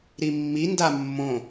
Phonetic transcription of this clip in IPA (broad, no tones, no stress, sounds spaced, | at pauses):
ɾ i mː i n d a mː õ